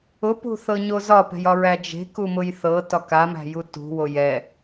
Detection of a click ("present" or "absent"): absent